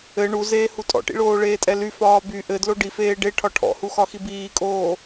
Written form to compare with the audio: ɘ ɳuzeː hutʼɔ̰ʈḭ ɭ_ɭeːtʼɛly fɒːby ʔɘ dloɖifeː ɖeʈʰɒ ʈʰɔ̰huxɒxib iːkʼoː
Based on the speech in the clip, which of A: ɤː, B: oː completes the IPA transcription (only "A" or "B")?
B